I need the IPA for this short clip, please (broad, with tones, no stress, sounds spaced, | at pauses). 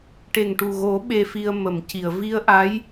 ʈ e˨˩ ŋ ʈ u˨˩ ɣ o˨˩˦ ɓ e˧ f i˧ ə̯ m ə˨˩˨ m c i˨˩˨ ə̯ v i˧ ə̯ ʔ a˧˥ j